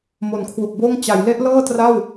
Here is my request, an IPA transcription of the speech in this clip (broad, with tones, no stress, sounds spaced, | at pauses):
m o˨˩ n kʰ w u˨˩ k̚ b oː˥˩ ŋ t͡ɕ a˩˦ j l e˦˥ ʔ l ɤː˥˩ t r a˥˩ w